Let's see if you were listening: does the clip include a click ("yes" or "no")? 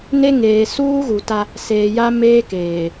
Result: no